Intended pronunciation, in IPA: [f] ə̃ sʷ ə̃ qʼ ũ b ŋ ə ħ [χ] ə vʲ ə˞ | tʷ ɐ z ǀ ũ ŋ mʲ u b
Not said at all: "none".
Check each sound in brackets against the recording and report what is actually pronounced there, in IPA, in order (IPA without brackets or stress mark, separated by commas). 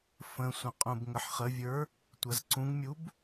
f, χ